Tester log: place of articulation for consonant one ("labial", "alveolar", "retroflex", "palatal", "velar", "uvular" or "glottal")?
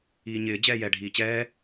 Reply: palatal